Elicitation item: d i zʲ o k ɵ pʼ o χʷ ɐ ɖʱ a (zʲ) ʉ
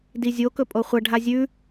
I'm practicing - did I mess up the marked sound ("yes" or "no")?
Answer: no